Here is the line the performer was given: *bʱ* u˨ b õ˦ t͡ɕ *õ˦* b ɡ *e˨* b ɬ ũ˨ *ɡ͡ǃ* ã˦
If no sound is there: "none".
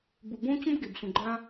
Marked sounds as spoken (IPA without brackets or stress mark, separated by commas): b, õ˦, e˨, ɡ͡ǃ